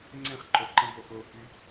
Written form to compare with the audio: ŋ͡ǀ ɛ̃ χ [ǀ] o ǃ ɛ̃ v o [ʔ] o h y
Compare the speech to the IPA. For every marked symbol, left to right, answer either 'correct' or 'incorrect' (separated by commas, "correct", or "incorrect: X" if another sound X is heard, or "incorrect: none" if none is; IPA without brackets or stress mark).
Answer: incorrect: ǃ, correct